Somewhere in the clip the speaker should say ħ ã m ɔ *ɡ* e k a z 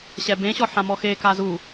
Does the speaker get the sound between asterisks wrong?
yes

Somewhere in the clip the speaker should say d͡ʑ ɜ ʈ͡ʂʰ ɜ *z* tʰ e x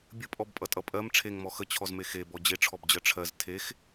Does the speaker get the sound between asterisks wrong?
no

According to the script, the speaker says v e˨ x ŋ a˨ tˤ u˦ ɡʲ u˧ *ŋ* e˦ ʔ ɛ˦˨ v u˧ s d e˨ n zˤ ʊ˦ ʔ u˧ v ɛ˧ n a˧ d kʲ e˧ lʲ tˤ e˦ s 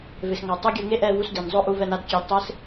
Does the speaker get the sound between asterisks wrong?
no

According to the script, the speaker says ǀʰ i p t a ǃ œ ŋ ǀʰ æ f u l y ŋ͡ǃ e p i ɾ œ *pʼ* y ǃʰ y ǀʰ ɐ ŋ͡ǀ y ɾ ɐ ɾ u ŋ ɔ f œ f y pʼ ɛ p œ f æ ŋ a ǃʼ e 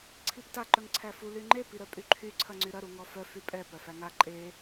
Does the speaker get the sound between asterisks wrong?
no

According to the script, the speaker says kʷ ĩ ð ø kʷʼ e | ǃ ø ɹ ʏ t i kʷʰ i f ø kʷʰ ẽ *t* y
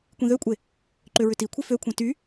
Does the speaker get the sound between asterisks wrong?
no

